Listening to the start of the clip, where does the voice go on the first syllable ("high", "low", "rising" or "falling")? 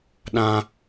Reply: high